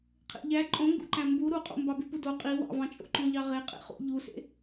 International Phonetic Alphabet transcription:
qʰ ḛ ʎ æ ǃʼ õ ŋ ɡ ṵ ǃ æ̃ m b u ɾ u qʼ o̰ m b ɑ b y p u d o qʼ i w ɑ̰ v ɑ̃ t͡ʃʼ o̰ ǃ õ ʎ ɑ ʁ e qʼ ḛ χ ṵ ʎ u s ḛ

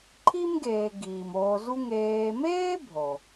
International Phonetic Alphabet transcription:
ǃʰ i˥ m ɡ eː˨ ɡ iː˩ m oː˨ z u˦ ŋ eː˨ m eː˥ bʱ o˩

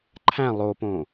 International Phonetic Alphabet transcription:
ǃʰ æ̃ lˠ o p õ

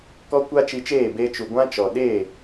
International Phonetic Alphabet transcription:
k ɔ˦ kʷ a˦ t͡ʃ i˧ t͡ʃ eː˦˨ b e˧ t͡ʃ u˨ ɡʷ ã˦ t͡ʃ ɔ˨ ɗ e˦˨

